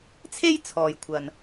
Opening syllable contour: high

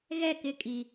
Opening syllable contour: falling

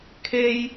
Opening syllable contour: high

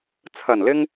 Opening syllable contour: low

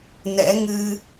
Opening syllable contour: rising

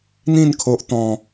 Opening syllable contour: falling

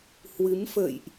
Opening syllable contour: rising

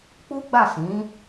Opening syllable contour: high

